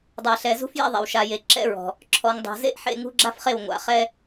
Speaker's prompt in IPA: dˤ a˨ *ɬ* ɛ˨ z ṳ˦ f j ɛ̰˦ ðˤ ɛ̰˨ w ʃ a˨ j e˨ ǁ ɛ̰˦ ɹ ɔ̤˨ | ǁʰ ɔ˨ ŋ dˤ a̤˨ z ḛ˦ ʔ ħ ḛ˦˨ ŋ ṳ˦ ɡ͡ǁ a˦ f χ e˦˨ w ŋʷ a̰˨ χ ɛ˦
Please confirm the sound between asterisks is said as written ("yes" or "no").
yes